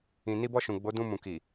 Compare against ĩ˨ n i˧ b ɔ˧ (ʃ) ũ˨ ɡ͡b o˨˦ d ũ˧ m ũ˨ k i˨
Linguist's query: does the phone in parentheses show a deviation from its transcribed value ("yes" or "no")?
no